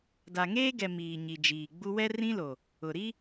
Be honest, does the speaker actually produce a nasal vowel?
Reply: yes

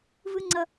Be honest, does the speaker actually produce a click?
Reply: yes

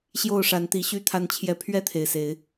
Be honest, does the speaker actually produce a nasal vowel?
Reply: no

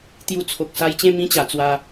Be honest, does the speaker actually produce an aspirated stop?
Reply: yes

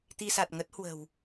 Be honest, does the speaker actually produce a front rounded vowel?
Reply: no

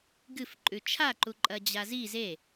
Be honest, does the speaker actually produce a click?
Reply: yes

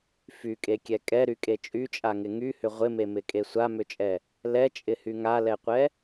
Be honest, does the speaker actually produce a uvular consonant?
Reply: yes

